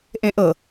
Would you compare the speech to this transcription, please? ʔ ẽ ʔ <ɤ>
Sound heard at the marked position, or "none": ɤ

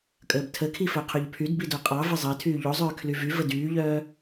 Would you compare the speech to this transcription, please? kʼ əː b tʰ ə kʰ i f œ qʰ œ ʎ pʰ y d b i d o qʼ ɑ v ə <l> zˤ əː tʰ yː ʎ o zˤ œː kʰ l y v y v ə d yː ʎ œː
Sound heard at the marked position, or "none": none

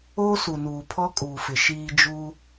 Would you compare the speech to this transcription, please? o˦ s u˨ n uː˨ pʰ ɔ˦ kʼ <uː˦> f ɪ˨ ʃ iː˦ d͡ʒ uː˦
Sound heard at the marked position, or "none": uː˨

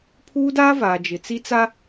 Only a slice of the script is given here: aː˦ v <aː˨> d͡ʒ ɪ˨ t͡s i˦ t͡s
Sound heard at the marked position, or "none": aː˨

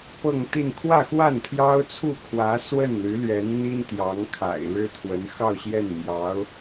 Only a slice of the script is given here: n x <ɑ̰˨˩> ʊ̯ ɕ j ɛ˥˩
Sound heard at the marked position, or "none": ɑ˥˧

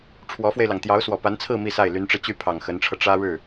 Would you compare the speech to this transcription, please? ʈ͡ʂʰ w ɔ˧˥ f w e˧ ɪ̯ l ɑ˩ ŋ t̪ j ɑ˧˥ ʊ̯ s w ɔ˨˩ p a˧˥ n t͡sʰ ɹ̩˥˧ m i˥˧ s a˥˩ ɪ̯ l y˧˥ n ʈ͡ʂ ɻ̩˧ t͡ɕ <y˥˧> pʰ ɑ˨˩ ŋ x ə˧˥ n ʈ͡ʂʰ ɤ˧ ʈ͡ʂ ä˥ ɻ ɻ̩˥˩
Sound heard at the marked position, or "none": y˥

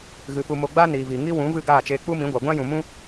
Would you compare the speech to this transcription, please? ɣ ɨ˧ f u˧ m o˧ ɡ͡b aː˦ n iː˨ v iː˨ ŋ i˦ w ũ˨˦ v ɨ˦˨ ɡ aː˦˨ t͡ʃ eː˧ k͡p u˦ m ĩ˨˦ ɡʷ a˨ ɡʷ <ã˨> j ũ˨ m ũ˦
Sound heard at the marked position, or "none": ã˦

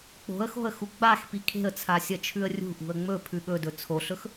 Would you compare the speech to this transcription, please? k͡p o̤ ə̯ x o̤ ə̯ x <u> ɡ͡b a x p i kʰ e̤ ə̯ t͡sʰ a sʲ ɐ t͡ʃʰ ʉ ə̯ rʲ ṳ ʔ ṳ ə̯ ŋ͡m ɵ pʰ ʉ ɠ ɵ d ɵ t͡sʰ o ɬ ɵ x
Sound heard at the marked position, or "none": u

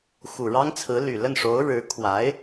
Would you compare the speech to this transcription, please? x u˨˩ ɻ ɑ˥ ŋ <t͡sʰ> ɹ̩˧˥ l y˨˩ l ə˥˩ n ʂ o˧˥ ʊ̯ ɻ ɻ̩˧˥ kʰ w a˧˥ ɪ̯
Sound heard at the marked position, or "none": t͡sʰ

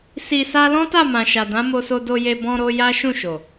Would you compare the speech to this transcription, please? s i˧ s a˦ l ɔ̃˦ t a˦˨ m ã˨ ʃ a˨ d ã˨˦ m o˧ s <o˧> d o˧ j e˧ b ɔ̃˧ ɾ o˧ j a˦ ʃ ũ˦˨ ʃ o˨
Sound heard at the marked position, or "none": o˧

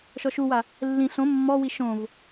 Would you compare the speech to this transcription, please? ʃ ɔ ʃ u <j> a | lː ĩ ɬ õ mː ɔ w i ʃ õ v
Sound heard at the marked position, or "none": w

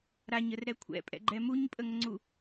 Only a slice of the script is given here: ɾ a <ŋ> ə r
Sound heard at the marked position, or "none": ɲ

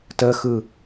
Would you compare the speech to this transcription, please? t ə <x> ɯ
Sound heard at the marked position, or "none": x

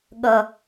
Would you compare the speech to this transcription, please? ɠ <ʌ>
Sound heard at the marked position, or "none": ʌ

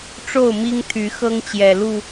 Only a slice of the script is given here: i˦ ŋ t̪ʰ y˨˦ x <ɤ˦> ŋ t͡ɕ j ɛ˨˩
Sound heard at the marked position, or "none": ɤ˦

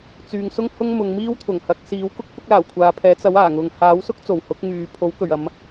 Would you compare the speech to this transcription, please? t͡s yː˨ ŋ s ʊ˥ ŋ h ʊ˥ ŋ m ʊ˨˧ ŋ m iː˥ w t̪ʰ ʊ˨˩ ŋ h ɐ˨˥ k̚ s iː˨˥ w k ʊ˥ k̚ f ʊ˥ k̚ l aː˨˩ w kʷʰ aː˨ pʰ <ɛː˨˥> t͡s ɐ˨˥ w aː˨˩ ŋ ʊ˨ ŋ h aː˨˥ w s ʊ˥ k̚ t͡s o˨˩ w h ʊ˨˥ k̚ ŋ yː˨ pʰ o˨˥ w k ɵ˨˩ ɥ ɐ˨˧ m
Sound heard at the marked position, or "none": ɛː˨˥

